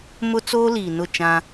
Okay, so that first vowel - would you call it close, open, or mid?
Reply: close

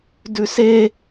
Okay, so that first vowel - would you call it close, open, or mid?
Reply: close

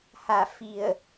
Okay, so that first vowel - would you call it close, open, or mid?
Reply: open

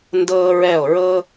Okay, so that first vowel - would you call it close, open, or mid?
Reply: mid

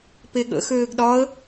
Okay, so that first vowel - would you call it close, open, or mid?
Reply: mid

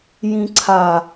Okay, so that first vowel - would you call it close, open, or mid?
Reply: close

